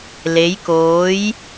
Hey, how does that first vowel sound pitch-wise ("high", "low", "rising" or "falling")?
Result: rising